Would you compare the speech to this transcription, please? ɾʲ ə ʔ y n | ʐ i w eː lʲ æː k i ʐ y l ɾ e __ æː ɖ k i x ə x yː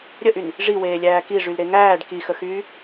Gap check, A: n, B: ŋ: B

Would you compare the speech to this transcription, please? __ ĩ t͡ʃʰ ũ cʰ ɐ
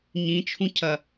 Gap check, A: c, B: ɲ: B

